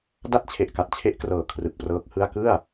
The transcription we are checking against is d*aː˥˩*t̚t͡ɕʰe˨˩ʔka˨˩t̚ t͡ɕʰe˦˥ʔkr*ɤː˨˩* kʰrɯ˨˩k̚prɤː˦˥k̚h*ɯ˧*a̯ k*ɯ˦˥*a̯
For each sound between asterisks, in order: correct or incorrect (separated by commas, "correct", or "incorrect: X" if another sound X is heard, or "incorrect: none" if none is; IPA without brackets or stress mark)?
incorrect: a˥˩, correct, incorrect: ɯ˥˩, incorrect: ɯ˥˩